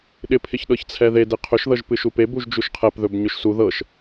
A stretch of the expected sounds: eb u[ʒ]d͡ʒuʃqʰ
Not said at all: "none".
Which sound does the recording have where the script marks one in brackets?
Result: ʒ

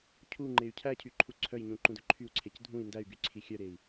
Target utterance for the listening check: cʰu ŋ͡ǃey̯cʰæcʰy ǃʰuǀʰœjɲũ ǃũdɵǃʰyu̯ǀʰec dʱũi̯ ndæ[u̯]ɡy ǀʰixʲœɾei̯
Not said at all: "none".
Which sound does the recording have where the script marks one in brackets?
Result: y̯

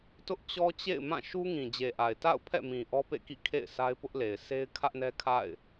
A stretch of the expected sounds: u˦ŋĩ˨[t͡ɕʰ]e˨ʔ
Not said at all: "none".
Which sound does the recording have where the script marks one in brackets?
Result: d͡ʑ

